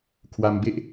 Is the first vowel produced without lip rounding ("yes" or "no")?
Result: yes